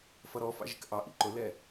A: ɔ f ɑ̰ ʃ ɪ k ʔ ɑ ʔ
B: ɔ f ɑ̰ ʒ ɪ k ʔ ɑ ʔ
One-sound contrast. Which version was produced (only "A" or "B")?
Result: B